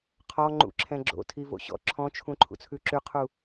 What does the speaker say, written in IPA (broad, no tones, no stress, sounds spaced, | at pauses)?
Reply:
qʰ ɔ ŋ͡ǃ ṵ ǁʰ ɛ̃ ɡ͡ǁ o̰ tʰ i v o̰ ɕ ɔ̰ ǁʰ ɔ̃ t͡ʃʰ ũ ǃʰ ṵ t͡sʰ ʉ ǁ ʉ qʰ u